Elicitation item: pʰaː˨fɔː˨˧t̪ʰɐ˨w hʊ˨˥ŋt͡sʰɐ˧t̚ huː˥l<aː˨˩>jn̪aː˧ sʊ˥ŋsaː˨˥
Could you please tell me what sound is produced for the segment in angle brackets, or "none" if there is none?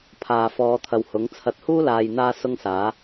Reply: aː˨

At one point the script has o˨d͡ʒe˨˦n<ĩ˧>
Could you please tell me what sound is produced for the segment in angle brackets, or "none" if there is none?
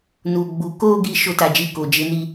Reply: i˧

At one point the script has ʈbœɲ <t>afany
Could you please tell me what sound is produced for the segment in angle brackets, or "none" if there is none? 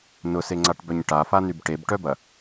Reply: ʈ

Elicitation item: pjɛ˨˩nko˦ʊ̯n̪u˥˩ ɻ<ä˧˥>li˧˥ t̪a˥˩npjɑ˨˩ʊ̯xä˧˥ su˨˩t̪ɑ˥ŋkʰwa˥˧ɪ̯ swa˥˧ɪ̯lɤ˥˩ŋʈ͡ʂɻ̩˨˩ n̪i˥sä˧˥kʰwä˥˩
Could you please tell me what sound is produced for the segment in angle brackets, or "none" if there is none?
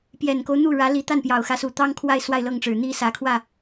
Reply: ä˧˥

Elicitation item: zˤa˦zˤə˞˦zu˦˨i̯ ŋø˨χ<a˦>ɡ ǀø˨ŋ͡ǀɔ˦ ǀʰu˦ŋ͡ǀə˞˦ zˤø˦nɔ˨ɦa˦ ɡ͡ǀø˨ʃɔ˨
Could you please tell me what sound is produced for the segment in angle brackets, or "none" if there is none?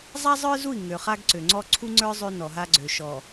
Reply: a˦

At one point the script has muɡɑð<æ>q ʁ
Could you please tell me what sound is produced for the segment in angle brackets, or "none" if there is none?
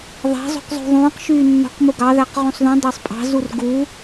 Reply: æ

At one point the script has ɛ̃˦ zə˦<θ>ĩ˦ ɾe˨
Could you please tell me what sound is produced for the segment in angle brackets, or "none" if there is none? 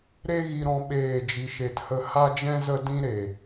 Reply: d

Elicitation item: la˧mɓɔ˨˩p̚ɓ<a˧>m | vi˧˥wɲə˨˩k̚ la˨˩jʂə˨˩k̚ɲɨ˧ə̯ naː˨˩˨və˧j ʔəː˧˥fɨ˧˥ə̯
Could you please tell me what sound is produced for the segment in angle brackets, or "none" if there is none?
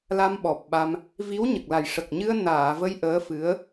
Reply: a˧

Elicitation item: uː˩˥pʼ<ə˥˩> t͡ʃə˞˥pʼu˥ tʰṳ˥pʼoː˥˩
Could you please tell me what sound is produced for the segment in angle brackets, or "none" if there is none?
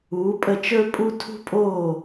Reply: ə˥˩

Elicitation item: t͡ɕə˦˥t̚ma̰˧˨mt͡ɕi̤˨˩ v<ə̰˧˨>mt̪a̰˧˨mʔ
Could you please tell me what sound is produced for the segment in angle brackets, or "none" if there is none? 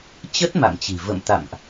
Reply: ə̰˧˨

